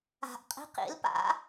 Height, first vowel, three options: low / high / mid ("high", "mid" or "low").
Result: low